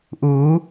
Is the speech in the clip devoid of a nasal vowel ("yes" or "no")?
yes